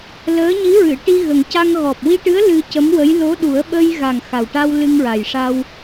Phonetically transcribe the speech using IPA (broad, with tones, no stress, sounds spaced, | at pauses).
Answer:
l əː˧˥ ɲ i˧˥ ɹ ɨ˨˩˨ ʈ i˧ ɣ ə˨˩ ŋ c a˧ ŋ ɣ ɔ˨˩ p̚ w i˧ ʈ ɨ˧˥ ə̯ l ɨ˧ c ə˧˥ m w ə˧˥ j l o˧˥ ɗ u˨˩˦ ə̯ ɓ ə˧ j ɣ a˨˩ ŋ x a˨˩ w ʈ a˧ w l ɨ˧ ŋ ɹ a˨˩ j ʂ a˧ w